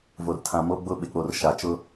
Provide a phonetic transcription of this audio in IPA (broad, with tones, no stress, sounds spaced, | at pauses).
v o˨ r tʰ ã˨ m o˦ ɡ͡b ʊ˦ ɓ ɪ˨ k͡p o˨ r ʃ a˨ t͡ʃ ʊ˦